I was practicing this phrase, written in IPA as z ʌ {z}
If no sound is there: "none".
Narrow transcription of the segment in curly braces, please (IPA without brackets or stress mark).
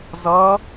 none